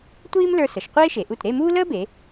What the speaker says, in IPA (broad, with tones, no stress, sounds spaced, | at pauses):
tʷ iː˥ m l ə˞˧ s ə˩˧ ʃ qʷ eː˥ ʃ e˩˧ ʔ u˧˩ t ɾ e˥˧ m uː˥ l əː˥ b e˩˧